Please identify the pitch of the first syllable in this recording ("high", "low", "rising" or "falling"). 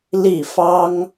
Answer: falling